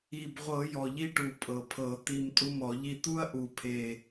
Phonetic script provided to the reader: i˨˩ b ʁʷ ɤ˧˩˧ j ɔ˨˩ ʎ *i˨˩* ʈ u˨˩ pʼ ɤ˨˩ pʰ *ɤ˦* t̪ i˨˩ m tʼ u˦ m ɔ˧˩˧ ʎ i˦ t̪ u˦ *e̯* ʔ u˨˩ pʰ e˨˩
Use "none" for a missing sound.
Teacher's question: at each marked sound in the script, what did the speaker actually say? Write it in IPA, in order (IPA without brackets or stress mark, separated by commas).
i˦, ɤ˧˩˧, ɐ̯